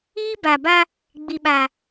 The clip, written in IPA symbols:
iː˦ b a˨ b a˦ | ɡ͡b i˨ ɓ a˨

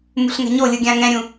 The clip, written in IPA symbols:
m ṳ ɬ ŋ ɛ̤ ɲ o lʲ ɯ ɡʲ ã ŋ ɛ̃ ɾʲ ũ

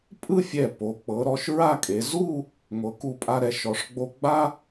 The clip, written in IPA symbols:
pʼ ɯ˥˧ fʲ ɛ˧˩ p o˩˧ k͡p ɤ˩˧ ɾ ɔ˧ ʃ ɹ a˥˧ kʼ e˩˧ z u˥˧ | ŋʷ ɤ˩˧ k u˧˩ pʼ a˧ ɾ ɛ˩˧ ʃ ɔ˩˧ ʂ ɡ͡b o˧ ɡ͡b a˥

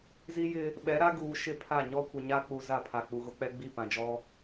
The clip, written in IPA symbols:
z i˦ j ɪ˦ | ɓ ɛ˨˦ ɾ a˦ ɡ uː˨ ʃ ɪ˦˨ pʰ a˦˨ ɲ ɔ˦ kʷ ɪ˨ ɲ a˦ k͡p u˨ z a˦˨ pʰ a˨ k͡p u˨ ɣ ʊ˦ k͡p ɛ˦ ɡ͡b i˦˨ p ã˨ d͡ʒ ɔ˦

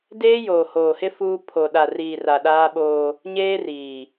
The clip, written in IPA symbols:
d eː˦ j oː˨ h oː˨ h ɪ˦ f uː˦ pʰ o˨ ɗ a˨ r iː˨ r a˨ ɗ aː˦ ɓ oː˦ | ɲ eː˦ r iː˨

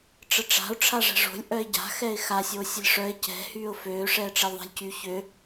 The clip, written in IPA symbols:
ʈ͡ʂ ə ʈ͡ʂ a̤ ʊ̯ ʈ͡ʂʰ a ʐ ɛ̤ ʐ o̤ lʲ ʔ œ ɪ̯ ɟ a̤ x ɛ ɪ̯ x a sʲ o sʲ ə lʲ ʂ œ ɪ̯ c ɛ̤ h yː ʊ̯ f øː ʂ ɛː ʈ͡ʂ ɛ lʲ ðˤ a̤ lʲ c y ç ø

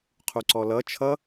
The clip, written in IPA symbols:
qʰ u ǀ ɔ l ʌ t͡ʃʰ ʌ

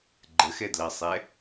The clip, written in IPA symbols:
ɡ͡ǃ ə x ɛ d l ɑ sˤ ɛ

